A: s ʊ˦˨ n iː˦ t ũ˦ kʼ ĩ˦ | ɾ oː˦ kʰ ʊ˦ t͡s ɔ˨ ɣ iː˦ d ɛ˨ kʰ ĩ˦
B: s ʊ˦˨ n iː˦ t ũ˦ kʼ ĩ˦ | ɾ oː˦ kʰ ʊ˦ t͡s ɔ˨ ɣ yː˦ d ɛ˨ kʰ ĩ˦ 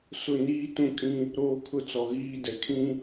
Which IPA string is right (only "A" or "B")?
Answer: A